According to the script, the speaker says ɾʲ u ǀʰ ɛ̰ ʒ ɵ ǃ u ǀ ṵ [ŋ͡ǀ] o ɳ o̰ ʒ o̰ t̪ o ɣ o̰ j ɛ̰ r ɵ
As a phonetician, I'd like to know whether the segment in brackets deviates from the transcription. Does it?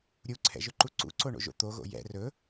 yes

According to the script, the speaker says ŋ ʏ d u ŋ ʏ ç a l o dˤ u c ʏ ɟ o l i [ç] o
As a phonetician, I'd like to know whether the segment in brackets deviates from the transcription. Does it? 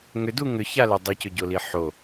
yes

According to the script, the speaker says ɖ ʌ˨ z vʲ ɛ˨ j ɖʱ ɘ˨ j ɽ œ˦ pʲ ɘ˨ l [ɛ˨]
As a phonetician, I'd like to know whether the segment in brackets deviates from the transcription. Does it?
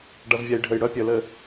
yes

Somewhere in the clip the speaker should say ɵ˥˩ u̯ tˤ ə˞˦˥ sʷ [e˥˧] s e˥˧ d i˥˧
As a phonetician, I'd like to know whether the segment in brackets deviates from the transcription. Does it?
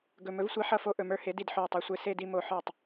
no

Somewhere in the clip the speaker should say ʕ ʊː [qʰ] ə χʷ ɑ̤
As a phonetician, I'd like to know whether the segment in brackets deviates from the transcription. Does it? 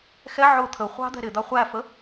yes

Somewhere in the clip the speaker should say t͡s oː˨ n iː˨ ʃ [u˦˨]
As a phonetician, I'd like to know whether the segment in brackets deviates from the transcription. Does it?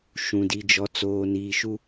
yes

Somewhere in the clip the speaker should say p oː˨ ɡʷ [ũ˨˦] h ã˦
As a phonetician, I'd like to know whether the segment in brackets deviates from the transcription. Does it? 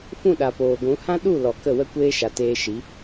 no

